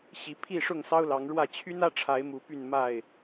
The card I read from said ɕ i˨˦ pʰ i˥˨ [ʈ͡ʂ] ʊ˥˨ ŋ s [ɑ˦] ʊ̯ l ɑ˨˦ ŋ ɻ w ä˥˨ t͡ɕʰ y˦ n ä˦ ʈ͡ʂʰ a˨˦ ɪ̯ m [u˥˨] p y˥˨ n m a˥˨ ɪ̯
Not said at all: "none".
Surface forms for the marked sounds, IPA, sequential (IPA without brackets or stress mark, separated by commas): ʂ, ɑ˦, u˨˦